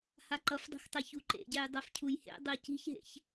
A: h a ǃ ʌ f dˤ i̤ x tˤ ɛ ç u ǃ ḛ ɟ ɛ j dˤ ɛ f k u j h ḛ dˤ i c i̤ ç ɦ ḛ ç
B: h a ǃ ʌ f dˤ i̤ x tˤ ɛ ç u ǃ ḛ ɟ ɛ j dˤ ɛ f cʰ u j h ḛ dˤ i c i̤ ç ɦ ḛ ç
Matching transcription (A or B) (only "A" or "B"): B